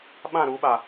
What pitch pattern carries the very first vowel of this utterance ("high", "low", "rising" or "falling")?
falling